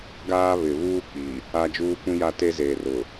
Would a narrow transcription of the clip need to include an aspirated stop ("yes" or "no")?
no